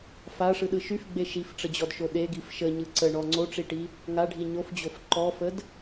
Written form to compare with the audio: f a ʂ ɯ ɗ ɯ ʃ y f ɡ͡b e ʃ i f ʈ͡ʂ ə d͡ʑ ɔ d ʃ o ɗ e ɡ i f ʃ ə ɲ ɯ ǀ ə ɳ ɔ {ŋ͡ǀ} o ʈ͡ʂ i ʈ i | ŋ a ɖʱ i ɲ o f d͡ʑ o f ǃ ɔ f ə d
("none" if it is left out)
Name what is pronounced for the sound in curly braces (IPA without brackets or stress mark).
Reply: ŋ͡ǀ